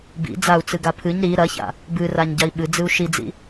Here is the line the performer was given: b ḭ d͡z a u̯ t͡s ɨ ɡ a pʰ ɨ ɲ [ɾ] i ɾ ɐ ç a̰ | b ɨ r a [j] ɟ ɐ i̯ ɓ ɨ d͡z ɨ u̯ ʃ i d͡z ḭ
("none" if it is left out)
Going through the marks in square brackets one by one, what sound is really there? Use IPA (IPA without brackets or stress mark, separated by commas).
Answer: ɾ, ɲ